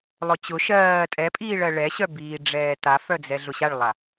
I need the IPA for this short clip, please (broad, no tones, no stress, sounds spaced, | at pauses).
lˠ ʊ t͡ɕ ʊ ʃ ɜː tʼ ɛ pʼ iː ɭ ɜ ɭ ɛ ɕ œ b iː ɖ͡ʐ ɛː t a f œ d͡z ɛ ɮ ʊ ɕ a ɭ lˠ a